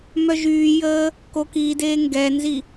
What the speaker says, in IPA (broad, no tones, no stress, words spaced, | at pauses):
mœʒyːjəː | kokideː ŋɡɛnzi